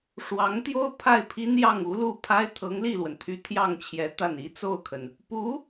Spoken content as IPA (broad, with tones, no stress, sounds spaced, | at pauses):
ʂ w ɑ˧˥ ŋ t̪ j o˥ ʊ̯ pʰ a˥˩ ɪ̯ pʰ i˥ n j ɑ˥˩ ŋ u˧˥ l u˥˩ pʰ a˥ ɪ̯ t̪ʰ ɤ˧˥ ŋ l i˥˩ l w ə˩ n t̪ʰ y˧˥ t̪ʰ j ɑ˥˩ ŋ t͡ɕʰ j ɛ˧˥ t̪ a˥˩ n i˧˥ t͡s o˥˩ ʊ̯ kʰ ə˩ n | p u˧˥